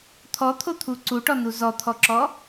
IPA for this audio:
t̪ʰɔt̪ʰot̪ʰu ǀuʈɔnu zɔt̪ʰɔǁɔ

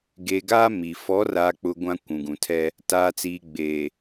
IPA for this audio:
ɡeː˨ɡaː˦ mi˨ fɔ˨˦raː˨k͡pʊ˨ ɡʷã˦kʷũ˨ɡũ˨tʰɛ˦ | taː˨t͡siː˨ ɡ͡beː˨

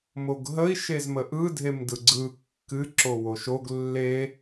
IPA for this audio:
moɡɦəi̯ ʃezməʔɯ dʱemdɯɡ͡ǀɯ kːɨǁo woʃoɡ lːe

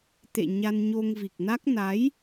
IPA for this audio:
t̪ḛ˧˨ ɲa˧nɲo˧ŋvi˨˩k̚na˦˥k̚ na˨˦j

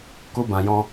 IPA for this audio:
ku˦bã˧jɔ̃˦

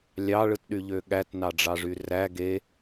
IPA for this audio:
lʲɑɭɯtɗyʎø ɠætnɑɖ͡ʐɑʐy ræ ɡe

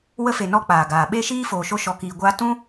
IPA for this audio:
wə˧fe˨ nɔ˧k͡paː˨ ɡaː˨ɓe˦ʃiː˦ foː˧ʃo˦ ʃɔ˧kiː˧ɡʷaː˦ tũ˦

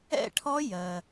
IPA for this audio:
ɛ̰˥˧ʈʰɔ˦˥ jɜ˩

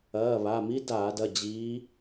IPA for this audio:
ɐː˩˧˩βa˩˧˩mi˦˥ daː˧˩˧dɐ˩˧˩ d͡ʑiː˨˦

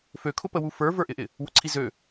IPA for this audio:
føkʰʊpəwu fə˞və˞ʔɪʔɪ | wʊǀʰizø

